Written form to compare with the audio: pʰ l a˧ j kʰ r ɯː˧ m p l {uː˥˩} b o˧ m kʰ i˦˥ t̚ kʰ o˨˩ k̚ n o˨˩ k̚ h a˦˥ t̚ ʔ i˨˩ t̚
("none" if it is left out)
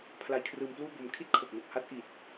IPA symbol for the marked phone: uː˥˩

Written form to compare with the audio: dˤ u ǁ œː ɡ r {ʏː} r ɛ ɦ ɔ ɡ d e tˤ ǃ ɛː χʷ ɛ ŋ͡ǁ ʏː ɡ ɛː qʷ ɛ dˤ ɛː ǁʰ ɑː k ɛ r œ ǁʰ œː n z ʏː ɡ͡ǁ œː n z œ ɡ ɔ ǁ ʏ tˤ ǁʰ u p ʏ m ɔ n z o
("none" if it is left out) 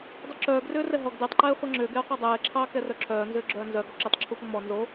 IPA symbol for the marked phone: ʏː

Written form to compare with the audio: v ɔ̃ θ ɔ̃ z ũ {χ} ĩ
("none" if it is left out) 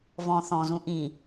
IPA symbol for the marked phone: ʔ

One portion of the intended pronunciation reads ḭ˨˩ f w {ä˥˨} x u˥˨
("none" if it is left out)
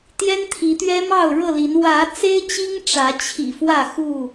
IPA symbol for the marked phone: ä˥˨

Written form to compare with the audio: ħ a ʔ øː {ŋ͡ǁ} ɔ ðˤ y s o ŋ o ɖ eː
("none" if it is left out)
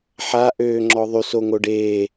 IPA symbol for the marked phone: ŋ͡ǁ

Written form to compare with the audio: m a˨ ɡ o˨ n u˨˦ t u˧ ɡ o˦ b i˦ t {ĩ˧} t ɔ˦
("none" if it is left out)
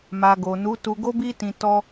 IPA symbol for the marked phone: ĩ˧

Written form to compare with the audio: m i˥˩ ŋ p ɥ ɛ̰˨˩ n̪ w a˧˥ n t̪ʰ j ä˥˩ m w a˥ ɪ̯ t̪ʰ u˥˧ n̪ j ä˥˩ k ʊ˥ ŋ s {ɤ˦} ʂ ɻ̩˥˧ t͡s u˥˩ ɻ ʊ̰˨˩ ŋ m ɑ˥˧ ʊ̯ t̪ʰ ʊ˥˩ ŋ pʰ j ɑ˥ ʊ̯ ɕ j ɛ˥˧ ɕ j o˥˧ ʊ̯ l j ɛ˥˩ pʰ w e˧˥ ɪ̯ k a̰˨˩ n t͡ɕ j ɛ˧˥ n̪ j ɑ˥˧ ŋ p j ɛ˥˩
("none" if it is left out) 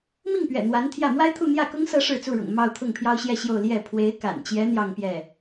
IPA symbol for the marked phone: ɤ˥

